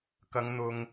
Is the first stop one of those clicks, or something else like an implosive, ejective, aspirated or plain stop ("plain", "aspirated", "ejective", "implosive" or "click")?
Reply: plain